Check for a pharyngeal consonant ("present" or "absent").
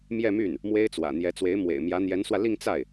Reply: absent